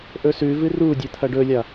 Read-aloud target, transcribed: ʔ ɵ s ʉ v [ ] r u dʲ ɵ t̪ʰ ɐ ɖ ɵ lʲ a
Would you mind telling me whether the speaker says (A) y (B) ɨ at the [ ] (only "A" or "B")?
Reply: B